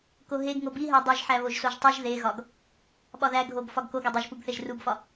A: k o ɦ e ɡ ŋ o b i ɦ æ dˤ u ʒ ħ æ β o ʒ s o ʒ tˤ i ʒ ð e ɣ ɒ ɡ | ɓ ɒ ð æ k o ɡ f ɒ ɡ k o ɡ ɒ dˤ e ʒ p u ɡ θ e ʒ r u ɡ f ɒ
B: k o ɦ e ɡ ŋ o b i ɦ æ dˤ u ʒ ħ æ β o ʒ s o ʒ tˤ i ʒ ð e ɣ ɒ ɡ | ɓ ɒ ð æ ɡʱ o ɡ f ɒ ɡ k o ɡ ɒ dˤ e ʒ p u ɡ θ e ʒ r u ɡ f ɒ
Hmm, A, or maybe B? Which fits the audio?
B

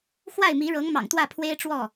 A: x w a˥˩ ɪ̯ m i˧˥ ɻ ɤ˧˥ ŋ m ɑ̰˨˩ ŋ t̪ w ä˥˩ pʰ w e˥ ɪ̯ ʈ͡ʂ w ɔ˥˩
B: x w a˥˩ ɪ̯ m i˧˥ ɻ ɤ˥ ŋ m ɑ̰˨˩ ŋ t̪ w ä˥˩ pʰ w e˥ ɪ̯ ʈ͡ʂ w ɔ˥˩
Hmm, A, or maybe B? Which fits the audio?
A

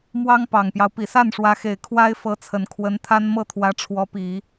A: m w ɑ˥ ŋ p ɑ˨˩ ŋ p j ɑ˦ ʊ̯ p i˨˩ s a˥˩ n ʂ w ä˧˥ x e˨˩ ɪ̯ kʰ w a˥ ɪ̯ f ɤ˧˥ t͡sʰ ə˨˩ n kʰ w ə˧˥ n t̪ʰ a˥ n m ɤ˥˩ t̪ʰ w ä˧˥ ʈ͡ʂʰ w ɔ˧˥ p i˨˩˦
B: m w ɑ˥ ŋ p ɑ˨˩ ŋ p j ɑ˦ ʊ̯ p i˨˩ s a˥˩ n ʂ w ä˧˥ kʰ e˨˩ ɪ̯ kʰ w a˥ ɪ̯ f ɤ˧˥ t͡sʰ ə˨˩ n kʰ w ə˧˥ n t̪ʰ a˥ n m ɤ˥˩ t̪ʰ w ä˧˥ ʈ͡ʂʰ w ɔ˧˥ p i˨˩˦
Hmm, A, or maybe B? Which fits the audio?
A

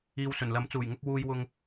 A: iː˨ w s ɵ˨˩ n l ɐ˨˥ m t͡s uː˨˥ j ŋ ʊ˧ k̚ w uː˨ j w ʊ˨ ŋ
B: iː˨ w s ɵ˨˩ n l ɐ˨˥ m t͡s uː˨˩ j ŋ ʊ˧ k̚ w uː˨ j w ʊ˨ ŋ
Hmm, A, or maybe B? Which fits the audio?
B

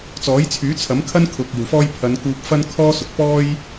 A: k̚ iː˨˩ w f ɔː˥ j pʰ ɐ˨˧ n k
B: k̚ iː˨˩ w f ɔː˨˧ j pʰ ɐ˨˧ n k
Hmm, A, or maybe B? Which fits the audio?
A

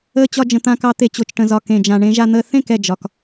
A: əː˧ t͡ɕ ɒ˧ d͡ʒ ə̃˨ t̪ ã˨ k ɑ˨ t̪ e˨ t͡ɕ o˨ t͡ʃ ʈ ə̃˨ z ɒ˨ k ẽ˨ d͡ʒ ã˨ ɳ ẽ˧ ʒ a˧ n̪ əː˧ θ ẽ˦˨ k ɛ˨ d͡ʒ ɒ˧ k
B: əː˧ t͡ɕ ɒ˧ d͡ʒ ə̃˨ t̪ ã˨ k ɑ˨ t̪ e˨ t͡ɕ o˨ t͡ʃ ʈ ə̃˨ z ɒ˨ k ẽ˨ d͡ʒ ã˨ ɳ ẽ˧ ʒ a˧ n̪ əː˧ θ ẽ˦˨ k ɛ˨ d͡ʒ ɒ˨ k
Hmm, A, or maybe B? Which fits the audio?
B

